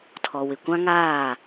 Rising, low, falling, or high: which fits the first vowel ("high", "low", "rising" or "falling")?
low